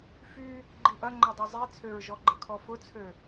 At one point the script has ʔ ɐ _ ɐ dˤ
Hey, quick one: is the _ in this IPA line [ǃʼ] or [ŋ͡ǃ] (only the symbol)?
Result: ŋ͡ǃ